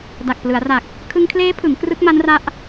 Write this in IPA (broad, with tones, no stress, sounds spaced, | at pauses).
d a˨˩ k̚ p l ɯ˩˦ a̯ r a˨˩ k̚ | kʰ ɯ˧ ŋ kʰ l eː˦˥ pʰ ɯ˩˦ ŋ k r ɯ˦˥ k̚ m a˦˥ n r a˦˥ ʔ